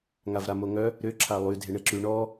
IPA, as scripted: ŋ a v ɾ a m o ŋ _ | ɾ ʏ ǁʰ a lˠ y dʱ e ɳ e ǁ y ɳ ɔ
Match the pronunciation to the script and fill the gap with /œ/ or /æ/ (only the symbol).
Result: œ